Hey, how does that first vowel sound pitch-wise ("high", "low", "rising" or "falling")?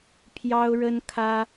high